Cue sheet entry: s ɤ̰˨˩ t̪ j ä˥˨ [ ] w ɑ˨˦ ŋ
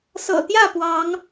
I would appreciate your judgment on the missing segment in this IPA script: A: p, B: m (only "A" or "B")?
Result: A